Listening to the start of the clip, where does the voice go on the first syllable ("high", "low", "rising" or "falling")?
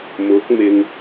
rising